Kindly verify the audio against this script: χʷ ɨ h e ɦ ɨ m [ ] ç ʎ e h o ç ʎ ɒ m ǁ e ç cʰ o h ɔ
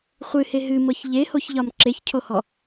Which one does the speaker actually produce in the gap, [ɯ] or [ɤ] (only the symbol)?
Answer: ɤ